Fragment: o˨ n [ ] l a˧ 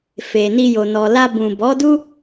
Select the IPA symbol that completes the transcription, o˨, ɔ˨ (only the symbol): ɔ˨